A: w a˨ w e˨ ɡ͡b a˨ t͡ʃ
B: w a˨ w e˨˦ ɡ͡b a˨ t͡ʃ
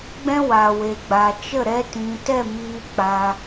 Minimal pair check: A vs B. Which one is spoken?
A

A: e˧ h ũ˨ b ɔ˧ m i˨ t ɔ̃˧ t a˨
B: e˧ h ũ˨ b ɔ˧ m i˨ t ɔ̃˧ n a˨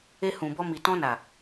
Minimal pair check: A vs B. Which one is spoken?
B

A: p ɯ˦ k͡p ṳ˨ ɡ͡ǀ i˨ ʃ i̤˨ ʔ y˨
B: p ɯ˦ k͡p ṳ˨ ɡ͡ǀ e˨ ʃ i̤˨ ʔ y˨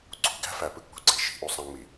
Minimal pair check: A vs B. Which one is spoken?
B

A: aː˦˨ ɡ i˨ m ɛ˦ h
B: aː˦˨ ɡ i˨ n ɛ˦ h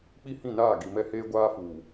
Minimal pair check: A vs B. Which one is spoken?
A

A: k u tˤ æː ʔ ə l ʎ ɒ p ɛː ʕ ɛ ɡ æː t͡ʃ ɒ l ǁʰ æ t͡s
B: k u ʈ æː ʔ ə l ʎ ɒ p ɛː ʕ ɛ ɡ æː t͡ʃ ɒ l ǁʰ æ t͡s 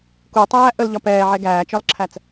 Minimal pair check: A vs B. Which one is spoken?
A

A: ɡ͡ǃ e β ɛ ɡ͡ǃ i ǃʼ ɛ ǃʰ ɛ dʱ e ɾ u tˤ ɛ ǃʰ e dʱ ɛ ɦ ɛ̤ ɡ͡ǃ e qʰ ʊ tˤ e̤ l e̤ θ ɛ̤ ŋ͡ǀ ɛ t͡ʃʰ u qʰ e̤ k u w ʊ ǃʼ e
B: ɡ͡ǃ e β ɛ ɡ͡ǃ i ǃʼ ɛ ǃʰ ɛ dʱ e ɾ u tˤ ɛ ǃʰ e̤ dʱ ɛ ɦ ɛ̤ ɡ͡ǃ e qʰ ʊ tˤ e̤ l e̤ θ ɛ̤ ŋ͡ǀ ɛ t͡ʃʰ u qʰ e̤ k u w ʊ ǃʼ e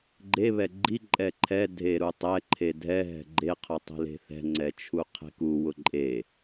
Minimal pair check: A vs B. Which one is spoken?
A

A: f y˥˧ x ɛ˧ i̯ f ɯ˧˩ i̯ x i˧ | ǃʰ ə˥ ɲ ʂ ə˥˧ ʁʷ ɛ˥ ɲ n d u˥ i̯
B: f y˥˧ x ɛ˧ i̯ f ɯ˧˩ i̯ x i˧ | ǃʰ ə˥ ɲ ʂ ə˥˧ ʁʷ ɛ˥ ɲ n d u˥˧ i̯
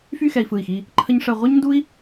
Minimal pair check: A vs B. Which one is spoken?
A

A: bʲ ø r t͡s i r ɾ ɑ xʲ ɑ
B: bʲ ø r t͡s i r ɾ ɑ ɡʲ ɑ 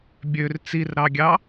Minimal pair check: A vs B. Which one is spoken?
B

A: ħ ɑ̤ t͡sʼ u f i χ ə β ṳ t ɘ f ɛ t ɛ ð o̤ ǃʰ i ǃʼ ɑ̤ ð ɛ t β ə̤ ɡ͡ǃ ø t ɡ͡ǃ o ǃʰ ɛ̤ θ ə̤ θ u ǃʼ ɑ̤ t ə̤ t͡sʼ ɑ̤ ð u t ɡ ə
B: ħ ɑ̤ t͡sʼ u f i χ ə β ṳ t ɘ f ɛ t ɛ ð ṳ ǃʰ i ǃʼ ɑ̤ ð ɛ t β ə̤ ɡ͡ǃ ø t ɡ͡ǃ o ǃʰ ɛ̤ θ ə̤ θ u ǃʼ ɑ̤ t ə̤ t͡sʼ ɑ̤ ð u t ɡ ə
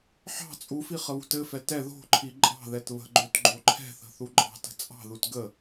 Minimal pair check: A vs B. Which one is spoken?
A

